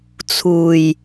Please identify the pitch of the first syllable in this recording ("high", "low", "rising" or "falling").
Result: low